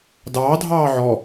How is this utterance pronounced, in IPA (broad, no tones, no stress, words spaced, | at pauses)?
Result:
dɑːdʱɑː ʕɔ